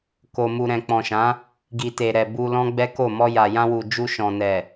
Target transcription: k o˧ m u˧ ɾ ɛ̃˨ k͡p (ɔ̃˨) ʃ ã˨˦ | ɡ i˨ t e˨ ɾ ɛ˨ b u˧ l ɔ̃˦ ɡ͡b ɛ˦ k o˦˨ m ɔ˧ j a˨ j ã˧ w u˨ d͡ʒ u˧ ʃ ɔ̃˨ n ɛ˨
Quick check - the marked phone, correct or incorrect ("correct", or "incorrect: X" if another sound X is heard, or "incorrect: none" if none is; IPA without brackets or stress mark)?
correct